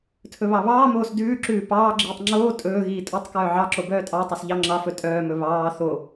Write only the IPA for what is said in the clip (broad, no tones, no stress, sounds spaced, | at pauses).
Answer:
tʰ ɵ β ɑ β ɑː m oː s d ʉː ǁ ʉː p ɑː ɡ͡ǁ iː tˤ ŋ͡ǁ oː tʼ ɵː ɣ iː tʼ o tˤ k œː ʕ ɑ ǁ o b œː tʼ ɑ tˤ ɵ s ʎ ɑ ŋ͡ǁ ɑ f ɵ tʼ œː m ɵ β ɑː θ o